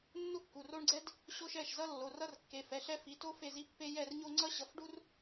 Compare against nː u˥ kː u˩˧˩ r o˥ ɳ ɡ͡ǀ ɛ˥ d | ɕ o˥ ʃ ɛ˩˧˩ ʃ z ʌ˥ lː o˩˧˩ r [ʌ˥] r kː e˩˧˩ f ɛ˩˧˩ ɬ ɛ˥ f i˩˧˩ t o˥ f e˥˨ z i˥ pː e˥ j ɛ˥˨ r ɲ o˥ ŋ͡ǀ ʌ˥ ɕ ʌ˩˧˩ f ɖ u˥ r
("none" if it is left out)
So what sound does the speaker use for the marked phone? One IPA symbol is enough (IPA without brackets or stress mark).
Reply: ʌ˥